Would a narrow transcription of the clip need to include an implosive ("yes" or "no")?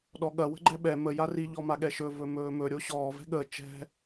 yes